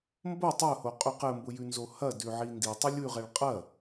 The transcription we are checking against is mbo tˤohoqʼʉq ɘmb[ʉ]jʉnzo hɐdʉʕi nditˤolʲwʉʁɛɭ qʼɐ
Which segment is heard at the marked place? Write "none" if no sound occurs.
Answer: ʊ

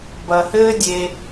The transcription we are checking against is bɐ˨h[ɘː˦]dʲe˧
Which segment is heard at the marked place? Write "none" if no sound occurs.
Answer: ɘː˦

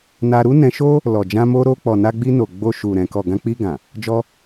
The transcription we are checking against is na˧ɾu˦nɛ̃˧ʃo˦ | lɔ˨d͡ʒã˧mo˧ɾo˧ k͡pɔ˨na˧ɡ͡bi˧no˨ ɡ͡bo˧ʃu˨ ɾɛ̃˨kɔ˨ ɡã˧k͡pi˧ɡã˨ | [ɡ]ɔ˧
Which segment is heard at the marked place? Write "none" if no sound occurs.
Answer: d͡ʒ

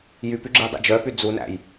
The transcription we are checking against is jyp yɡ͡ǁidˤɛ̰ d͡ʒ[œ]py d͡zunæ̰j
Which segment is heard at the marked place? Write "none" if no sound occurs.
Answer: œ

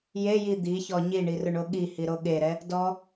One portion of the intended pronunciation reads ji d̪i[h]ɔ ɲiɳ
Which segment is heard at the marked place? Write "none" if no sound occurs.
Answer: ç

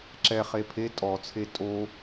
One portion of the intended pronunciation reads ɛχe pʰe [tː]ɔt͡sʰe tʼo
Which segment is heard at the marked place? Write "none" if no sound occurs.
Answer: tʼ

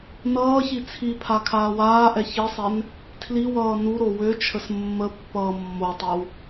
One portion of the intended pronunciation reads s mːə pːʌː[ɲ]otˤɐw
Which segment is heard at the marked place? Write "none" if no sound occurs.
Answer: mː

